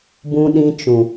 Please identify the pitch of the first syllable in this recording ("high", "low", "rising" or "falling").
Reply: low